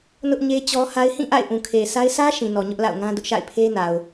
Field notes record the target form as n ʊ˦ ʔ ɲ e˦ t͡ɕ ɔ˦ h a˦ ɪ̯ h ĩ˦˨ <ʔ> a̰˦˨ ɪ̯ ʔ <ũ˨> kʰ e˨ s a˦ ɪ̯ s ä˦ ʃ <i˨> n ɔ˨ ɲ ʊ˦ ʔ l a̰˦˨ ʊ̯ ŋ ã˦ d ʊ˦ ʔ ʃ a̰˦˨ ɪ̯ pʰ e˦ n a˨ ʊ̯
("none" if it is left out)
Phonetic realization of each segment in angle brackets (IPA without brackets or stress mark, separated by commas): ʔ, ũ˨, ĩ˨